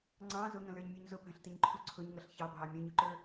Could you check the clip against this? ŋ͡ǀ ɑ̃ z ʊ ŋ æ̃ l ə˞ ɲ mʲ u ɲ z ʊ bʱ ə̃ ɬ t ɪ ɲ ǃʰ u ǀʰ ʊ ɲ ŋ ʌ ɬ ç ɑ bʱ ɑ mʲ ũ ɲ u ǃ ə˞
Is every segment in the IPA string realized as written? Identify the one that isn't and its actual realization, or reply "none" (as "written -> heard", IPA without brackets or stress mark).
æ̃ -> ə̃